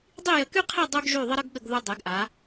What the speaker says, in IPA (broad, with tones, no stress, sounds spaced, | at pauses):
dˤ i˥˧ j ə˧˩ k y˥ qʰ e˥˧ dˤ u˧ ɡ ʒ y˧˩ ðˤ ə˥ ɾ ə˥ ɡ ɠ ə˧ ɡ ð u˧ dˤ e˩˧ ɡ ʔ a˩˧